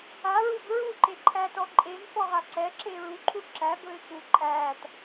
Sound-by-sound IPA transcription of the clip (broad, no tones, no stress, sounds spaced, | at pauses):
a ɹ u b ɹ u ǃ e ǃʰ æ t ɔ ǃʼ e m f ɔ ʁ a ǀ ɛ ǁ e ɹ u ǃʰ u ǁ æ b ɵ ɪ̯ k u ǃʼ æ t